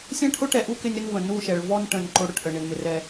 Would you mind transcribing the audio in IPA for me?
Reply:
sʲ ɛ̃˦ ʈʰ ʊ˦ ʈ ɛ˨ ʔ u˦ k ɪ˦ nʲ ɾ ɪ˦ n v ə̃˨ n u˦˨ ʃ ɛ˨ ɭ v ɔ˦ n ʈ ə̃˨ n ǃ ʊ˦ ɽ ʊ˨ ʈ ʔ ə˨ ɳ ɪ˨ n m ɪ˨ r ɛ˦

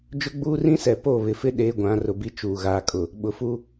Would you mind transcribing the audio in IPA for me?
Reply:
d͡ʒ ʊ˦ ɡ͡b uː˦ r ĩ˦ s ɛ˨ p o˦˨ β ɪ˨ f ɪ˦ ɗ eː˦ ɡʷ ã˨˦ r ʊ˨ b i˦ t͡ʃ uː˨ ɣ aː˨ kʼ ʊ˨ | ɓ ʊ˨ f u˦

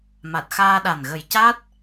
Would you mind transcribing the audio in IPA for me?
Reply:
m a˨˩ t̚ x aː˧ ɗ a˨˩ n ɣ ə˨˩ j c a˦˥ t̚

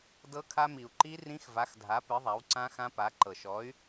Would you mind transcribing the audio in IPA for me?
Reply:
d ɤ˦˥ kʰ a˦˥ m i˨˩ u̯ ǃ i˦˥ r ĩ˦˥ x v a˨˥ x dʱ a˨˥ p ɨ˨˥ ðˤ a˨˥ w ǀ ã˦˥ x ã˦˥ p a˨˥ ǃ ɤ˨˩ ʃ ɔ˨˥ y̯

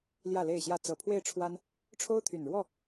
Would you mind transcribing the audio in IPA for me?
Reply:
l j ä˥˨ l e˥˨ ɪ̯ ɕ j ä˥˨ t͡s ɤ˨˩ pʰ w e˥˨ ɪ̯ ʈ͡ʂʰ w a˦ n | ʈ͡ʂʰ o˦ ʊ̯ t̪ʰ y˨˩ n ɻ w ɔ˥˨

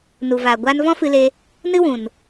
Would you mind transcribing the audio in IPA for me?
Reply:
n u˨ v aː˨ ɡʷ aː˧ n v ɔ̃˦ f ɨ˧ l e˧ | n ɨ˦ w ũ˨ n

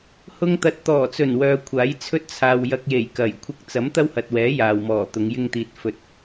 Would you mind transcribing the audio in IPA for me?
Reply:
h ʊ˧ ŋ t̪ ɐ˨ t̚ t̪ ɔː˨˩ t͡s ɵ˨˩ n w œː˨ kʷʰ aː˨˥ j t͡sʰ ɵ˥ t̚ t͡sʰ aː˨ w j ɐ˧ k̚ j e˨˩ j k ɐ˨˩ j kʷʰ ɪ˥ k̚ t͡s ɐ˨˥ m t̪ ɐ˥ w h ɐ˨ t̚ w ɛː˨˥ j aː˨ w m ɔː˨˩ t̪ ʊ˨˧ ŋ j ɪ˥ ŋ t̪ iː˧ t̚ f ɵ˧ t̚

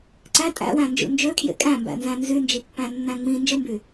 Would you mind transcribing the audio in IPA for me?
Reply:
ǀ æ tʼ æ̰ w æ̃ n d͡ʒ ṵ n d͡ʒ ø kʰ j ḛ kʼ æ̃ m b æ̰ n z æ̃ n z y n d͡ʒ i pː æ̃ nː æ̃ ŋ͡m ĩ n d͡ʒ ɯ m b y

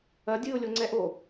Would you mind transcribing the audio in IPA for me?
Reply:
ɐ dʲ ɨ ʊ̯ lʲ o ŋ͡ǀ ɛ ʔ o

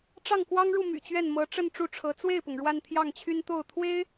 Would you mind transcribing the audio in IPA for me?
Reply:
ʈ͡ʂ ɑ˥˩ ŋ k w ɑ˥ ŋ ɻ u˥˩ m y̰˨˩ t͡ɕ ɥ ɛ˥˩ n m ɤ˧˥ ʈ͡ʂ ə˥˧ n ʈ͡ʂ u˥˩ ʈ͡ʂʰ ɤ˧˥ t͡s w e˥˩ ɪ̯ p ʊ˩ ŋ ɻ w a˥˧ n t̪ʰ j ɑ˥˩ ŋ t͡ɕʰ y˥ n t̪ o˥˩ ʊ̯ t̪ʰ w e˥ ɪ̯

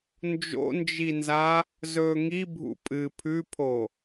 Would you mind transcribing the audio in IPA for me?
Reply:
n d͡ʒ o̰ n d͡ʒ i n z a | z ɵː ŋ i bʱ ṵ pʼ ɨ pʰ ʉ pʰ o

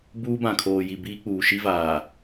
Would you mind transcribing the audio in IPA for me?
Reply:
b uː˦ b ã˨ kʰ oː˨ j i˨ b iː˦ k͡p uː˨ ʃ i˦ v aː˨

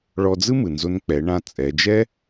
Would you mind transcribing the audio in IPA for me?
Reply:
ɭ ɔ˧ d͡z ɯ˥ m ɯ˩ n z o˧ n k͡p ɛ˩˧ ɳ ã˧ t͡sʼ ɛ˩˧ d͡ʒ ɛ˥

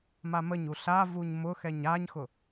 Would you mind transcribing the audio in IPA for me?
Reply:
m a m ə ɲ u ɬ a v u ɲ m ʊ x ɛ ɲ a ɲ x ʊ

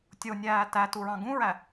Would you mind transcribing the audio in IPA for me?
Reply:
tʲ o nʲ æː t æ t u ɹ ɑ̃ ɡ ũ ɹ æ

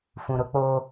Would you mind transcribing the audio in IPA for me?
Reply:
f ũ˨ ɾ ʊ˦ k͡p oː˦

